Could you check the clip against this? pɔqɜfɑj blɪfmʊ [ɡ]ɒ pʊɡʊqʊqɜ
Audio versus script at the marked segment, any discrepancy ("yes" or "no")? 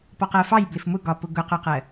no